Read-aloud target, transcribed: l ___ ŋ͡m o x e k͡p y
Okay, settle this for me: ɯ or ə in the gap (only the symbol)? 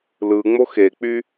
ɯ